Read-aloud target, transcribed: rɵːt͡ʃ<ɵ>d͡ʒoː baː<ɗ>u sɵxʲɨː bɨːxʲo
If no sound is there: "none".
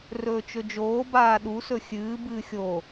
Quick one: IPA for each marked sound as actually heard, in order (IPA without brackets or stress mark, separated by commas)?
ɵ, ɗ